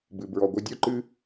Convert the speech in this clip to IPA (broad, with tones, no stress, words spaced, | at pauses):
bɨ˨ bɹɔ˨ɡʷɨ˧dʲo˦ǃɨ˦